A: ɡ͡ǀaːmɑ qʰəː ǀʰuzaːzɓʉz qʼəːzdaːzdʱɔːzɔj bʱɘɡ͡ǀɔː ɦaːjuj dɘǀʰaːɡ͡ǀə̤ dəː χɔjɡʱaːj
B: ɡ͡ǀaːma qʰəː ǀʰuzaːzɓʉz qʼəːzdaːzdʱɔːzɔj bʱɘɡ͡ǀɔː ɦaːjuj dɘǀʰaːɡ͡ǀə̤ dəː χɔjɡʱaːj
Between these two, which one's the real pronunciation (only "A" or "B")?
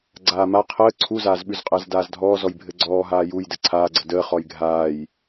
B